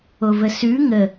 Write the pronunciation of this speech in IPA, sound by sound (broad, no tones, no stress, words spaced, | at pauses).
ovəsʉ ŋə